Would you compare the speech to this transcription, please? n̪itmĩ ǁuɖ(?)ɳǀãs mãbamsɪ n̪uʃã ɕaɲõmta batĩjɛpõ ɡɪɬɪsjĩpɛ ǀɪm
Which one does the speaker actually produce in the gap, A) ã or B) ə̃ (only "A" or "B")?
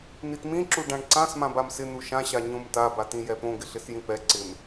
A